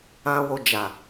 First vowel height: low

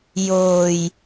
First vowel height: mid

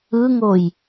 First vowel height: high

